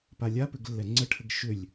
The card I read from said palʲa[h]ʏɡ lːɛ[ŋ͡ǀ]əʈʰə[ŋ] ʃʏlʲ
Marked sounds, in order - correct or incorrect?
incorrect: p, correct, incorrect: ɡ

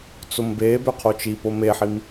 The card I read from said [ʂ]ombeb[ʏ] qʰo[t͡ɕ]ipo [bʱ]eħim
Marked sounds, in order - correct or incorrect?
incorrect: t͡s, correct, incorrect: t͡ʃ, incorrect: m

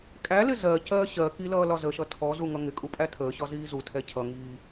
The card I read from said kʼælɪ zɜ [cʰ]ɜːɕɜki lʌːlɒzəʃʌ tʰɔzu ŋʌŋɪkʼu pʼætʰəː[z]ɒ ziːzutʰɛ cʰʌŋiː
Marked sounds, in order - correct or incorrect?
incorrect: c, incorrect: ɕ

